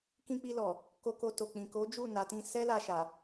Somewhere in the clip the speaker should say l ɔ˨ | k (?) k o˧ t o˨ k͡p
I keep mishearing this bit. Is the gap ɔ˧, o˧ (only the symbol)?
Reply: o˧